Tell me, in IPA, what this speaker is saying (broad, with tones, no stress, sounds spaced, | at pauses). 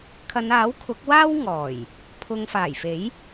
kʰ ɐ˨˧ n aː˨˥ w kʰ ʊ˨˥ k̚ w aː˥ w ŋ ɔː˨˩ j | pʰ ʊ˧ ŋ f aː˨˩ j f e˨˥ j